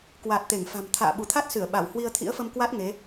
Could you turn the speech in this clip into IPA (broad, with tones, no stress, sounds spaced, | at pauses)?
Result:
k w a˨˩ t̚ t̪ e˧˩ ŋ f a̤˨˩ m t̪ʰ a̰ː˧˨ ɓ u˧˩ t̪ʰ a˦˥ t̚ s ɨ˧˩ ə̯ ɓ a˧˩ w h w i˧ ə̯ t̪ʰ ḭ˧˥ ə̯ f ə˧ m k w a˦˥ t̚ ŋ e˨˦